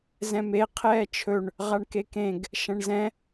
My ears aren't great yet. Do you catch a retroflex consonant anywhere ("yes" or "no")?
yes